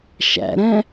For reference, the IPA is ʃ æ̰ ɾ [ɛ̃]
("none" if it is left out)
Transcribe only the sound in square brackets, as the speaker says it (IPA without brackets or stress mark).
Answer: ɛ̃